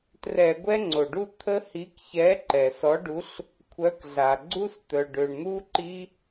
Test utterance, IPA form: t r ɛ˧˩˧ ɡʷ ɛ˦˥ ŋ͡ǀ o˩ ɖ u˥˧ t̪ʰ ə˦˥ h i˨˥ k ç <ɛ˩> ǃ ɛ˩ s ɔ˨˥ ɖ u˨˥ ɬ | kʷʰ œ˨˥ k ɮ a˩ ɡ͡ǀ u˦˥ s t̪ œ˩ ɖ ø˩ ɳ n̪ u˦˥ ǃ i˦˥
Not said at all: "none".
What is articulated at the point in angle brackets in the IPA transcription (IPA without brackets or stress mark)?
ɛ˨˥